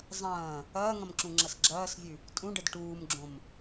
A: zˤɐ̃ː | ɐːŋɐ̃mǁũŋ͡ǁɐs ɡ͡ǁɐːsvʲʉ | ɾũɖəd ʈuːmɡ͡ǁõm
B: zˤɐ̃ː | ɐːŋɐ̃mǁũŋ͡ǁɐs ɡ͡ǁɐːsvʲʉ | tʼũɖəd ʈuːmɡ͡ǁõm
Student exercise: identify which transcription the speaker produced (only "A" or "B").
B